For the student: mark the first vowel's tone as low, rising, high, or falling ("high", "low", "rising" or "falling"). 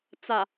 low